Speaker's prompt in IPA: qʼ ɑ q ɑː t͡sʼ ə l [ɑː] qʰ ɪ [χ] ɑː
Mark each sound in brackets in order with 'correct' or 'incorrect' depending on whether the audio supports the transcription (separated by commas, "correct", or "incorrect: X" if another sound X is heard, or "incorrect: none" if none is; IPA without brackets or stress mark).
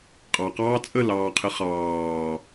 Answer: correct, correct